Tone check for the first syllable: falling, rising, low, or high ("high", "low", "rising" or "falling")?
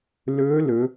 rising